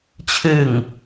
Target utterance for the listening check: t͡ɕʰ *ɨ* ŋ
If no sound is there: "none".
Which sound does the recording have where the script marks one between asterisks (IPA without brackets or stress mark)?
ɨ